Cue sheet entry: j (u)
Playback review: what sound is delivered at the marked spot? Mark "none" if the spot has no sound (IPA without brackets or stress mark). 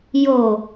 o